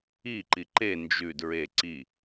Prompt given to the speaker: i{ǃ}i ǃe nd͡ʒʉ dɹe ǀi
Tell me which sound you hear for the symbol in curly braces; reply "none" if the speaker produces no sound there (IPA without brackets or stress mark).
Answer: ǃ